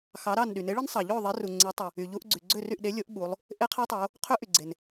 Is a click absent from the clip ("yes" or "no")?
no